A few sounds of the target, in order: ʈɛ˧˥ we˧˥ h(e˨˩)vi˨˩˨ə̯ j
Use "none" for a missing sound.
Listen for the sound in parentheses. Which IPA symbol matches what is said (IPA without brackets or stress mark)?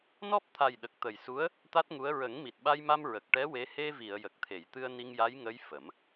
e˧